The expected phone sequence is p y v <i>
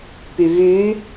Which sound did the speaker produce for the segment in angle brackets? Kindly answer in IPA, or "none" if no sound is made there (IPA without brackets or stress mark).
y